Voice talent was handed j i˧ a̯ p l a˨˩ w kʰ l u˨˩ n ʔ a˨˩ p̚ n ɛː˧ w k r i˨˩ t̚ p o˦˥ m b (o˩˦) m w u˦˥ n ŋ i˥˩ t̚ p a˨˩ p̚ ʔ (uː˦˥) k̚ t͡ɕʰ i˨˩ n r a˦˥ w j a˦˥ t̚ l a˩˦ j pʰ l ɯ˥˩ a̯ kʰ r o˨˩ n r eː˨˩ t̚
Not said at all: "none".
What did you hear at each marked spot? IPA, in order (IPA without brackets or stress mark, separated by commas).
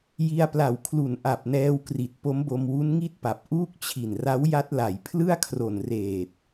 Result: o˧, uː˦˥